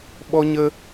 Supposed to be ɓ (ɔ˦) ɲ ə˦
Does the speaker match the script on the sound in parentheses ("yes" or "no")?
yes